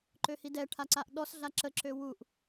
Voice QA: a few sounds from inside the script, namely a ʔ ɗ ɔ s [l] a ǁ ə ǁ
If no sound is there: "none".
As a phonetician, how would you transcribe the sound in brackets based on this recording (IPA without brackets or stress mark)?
ɮ